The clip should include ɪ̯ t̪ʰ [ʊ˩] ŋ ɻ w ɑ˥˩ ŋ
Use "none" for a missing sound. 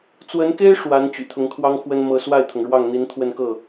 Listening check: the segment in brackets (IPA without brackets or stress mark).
ʊ˩